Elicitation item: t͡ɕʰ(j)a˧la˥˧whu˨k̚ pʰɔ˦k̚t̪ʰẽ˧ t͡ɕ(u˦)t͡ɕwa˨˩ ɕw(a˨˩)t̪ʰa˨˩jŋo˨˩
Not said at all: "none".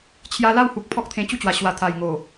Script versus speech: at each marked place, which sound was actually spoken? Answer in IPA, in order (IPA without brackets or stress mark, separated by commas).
j, u˦, a˨˩